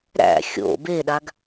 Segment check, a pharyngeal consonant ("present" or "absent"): absent